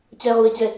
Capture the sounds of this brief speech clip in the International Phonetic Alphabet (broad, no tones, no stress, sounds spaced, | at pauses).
t͡ɕ ɛː ʁ u e̯ t͡ɕ ɛ